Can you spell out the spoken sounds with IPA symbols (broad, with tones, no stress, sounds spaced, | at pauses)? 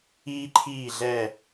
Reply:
iː˦ ǃʰ iː˦˨ ɮ ɛ˦˨